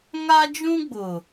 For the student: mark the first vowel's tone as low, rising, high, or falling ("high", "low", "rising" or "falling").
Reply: high